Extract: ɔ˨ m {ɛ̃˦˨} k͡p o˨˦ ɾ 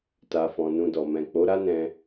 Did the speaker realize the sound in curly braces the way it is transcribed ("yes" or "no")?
no